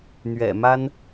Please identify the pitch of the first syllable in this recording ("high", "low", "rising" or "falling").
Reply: low